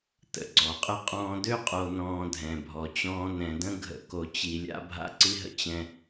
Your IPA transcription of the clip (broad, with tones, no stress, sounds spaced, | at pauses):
t ə̰˨ ɡ͡ǀ ɔ˨ qʼ ə˦ qʼ ɔ̃ː˦ d ø˦ qʼ o˨ n ɔ̃ː˨ dʱ ɛ̃˨ bʱ ɔ˨ t͡ɕ ɔ̃ː˦ n ɛ̃˨ d ə̃˦ ɡʱ ə̰˨ k o˨ t͡ɕ i˨ lʲ a̰˦ bʱ a̰˦ ǀ i˦ ɦ ə̰˦ t͡ɕ ɛ̃˦